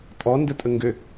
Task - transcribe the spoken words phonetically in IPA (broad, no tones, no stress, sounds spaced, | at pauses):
tʼ ɔ n d ə tʼ ə ŋ ɡ ø